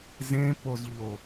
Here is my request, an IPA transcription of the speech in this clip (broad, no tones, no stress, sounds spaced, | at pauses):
z ẽ p o z ʎ o